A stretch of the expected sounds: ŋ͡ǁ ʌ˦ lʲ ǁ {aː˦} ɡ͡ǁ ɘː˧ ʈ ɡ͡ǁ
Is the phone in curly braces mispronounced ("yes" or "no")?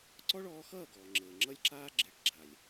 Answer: no